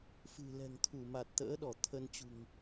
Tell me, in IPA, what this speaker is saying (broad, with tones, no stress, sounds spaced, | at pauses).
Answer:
f ɨ̤˨˩ l ɛ̤˨˩ ŋ t̪ʰ u˧˩ m a˨˩ t̚ t̪ ə̰ː˧˥ ɗ ɔ˧˩ t̪ʰ ə˧ n t͡ɕ ṳ˨˩ ŋ